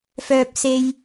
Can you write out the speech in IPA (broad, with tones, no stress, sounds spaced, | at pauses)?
f œː˥ p̚ s e˥ j